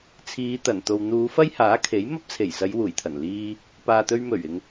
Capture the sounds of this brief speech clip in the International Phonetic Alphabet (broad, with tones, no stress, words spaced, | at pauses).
t͡sʰiː˨˧t̪ɐ˨˩nt̪o˨w n̪uː˨˧fɐ˥jhaː˨˥ kʰe˨˥j mɐ˥p̚t͡sʰe˨˩jsɐ˨˧j wuː˨˩jt̪ʰɐ˨˩n liː˧ | paː˨t̪ɵ˧ɥmɵ˨˩ɥ ɪ˧ŋ